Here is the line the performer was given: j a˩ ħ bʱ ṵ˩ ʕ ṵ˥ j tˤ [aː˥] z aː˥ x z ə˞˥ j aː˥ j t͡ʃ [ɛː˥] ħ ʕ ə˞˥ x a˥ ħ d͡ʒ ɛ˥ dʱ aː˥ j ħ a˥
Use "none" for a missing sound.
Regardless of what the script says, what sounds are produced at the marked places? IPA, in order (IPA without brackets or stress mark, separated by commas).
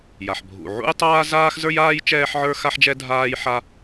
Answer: aː˥, ɛː˥